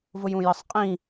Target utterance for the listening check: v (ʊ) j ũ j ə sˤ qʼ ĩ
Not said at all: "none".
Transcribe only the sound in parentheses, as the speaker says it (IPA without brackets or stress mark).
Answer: ʊ